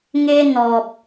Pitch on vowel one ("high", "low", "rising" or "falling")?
high